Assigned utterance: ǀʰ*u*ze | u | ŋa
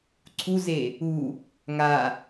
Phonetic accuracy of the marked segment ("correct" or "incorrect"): correct